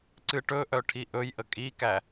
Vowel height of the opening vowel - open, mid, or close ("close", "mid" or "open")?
close